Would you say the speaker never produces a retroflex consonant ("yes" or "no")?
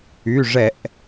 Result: no